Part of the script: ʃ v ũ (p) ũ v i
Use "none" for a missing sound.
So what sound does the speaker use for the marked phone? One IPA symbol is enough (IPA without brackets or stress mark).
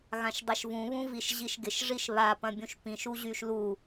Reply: β